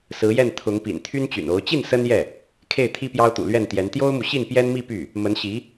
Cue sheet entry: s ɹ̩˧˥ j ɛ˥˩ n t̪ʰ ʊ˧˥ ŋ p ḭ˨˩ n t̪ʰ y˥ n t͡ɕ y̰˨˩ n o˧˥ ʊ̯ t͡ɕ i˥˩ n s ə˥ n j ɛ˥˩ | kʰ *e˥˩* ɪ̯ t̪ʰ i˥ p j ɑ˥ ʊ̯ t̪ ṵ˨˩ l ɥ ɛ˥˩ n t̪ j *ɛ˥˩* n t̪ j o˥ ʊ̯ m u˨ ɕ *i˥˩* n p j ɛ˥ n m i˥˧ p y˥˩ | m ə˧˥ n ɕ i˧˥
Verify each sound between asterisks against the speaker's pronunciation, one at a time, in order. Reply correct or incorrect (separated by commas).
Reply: correct, incorrect, correct